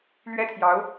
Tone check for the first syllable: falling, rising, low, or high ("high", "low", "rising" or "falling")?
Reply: high